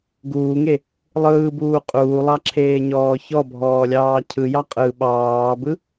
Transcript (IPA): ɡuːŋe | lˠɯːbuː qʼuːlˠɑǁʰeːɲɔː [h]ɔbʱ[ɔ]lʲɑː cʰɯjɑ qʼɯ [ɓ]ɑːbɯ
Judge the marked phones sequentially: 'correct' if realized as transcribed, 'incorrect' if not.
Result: incorrect: ç, incorrect: ɔː, correct

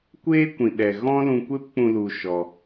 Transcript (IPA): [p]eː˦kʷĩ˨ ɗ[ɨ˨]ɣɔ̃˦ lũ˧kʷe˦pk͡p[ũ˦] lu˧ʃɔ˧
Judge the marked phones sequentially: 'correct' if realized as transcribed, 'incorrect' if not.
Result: incorrect: kʷ, incorrect: ɛ˨, incorrect: ũ˧

